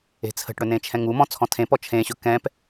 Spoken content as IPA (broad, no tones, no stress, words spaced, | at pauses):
e̤t͡sʰə̤ʈɽɵ nẽt͡ʃʰɛ̃ŋumɔ̃ t͡sʰɔ̃tʰẽpɔ t͡ʃʰẽɕɵ kɛ̃p